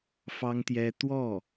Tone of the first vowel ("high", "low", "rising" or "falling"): high